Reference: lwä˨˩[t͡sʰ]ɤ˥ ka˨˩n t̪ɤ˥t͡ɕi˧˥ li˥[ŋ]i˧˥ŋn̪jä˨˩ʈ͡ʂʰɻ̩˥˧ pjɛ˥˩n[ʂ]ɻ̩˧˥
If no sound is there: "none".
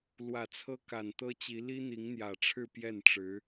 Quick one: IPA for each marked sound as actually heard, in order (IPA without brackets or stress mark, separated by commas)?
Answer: t͡sʰ, n̪, ʈ͡ʂ